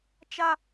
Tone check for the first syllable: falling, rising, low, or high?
high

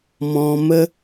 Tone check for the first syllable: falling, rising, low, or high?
low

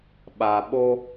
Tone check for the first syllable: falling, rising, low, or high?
low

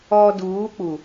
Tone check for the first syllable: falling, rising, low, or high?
low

